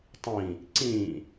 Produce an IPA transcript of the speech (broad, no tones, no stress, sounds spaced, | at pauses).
tˤ ĩ | ǀ ĩ